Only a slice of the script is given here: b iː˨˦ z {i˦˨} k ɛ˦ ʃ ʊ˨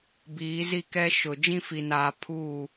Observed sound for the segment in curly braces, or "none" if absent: i˦˨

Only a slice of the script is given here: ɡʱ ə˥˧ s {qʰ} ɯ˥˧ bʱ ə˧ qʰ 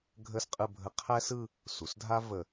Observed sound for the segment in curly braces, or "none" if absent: qʼ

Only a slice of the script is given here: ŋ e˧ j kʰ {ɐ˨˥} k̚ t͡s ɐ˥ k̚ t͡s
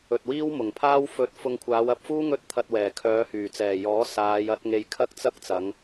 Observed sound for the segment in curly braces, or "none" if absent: ɐ˥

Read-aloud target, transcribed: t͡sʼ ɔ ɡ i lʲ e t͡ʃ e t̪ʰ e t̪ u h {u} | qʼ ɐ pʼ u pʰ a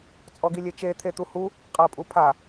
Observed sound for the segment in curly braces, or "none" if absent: u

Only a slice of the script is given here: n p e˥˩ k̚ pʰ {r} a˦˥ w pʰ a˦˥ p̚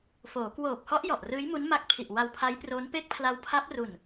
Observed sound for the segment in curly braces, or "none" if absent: l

